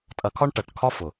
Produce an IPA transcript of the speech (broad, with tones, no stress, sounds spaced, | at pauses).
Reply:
tʼ ɐ˨˥ kʰ ɒ˥˧ ɳ ʈ ɐ˨˩˦ ʈ kʰ ɒ˥˧ f ʊ˨˩˦